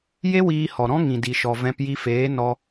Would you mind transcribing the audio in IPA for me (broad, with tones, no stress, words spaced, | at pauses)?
je˦wiː˧ hɔ˨ɾɔ̃˦ŋĩ˨ di˨ʃɔ˨ vɛ̃˦p ji˧feː˨˦ nɔ˧